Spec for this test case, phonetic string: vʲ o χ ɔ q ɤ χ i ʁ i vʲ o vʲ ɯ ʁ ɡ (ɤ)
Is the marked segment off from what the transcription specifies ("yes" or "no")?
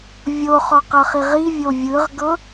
no